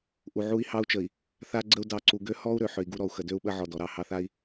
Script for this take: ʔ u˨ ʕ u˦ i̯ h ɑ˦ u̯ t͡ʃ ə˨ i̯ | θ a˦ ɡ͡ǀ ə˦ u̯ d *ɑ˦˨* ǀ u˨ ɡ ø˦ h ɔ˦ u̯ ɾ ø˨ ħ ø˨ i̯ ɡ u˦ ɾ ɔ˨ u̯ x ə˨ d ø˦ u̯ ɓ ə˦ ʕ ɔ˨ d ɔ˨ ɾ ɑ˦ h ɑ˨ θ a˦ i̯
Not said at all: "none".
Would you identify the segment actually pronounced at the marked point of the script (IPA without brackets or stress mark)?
ɑ˦˨